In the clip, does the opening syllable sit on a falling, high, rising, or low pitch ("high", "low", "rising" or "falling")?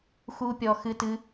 high